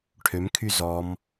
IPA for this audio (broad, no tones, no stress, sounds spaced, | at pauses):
ʈʰ ø m kʰ y z ɔ m